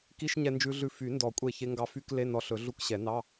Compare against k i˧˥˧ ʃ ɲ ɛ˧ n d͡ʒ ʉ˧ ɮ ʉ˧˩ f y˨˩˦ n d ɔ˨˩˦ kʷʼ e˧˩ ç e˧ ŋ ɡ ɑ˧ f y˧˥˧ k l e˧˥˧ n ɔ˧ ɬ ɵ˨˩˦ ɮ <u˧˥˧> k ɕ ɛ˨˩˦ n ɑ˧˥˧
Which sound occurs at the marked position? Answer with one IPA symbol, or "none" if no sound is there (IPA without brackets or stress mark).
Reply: u˧˥˧